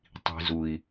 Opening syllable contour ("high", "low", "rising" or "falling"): low